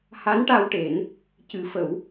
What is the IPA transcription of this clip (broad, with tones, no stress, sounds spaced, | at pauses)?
h a˧˥ n ʈ a˧ w ʈ e˨˩˦ n | c ɨ˨˩˦ f ə˨˩˦ w